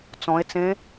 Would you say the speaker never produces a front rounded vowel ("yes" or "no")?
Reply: yes